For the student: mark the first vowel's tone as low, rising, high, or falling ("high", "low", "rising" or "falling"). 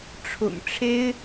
low